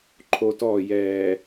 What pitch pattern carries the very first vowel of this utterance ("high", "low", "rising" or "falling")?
high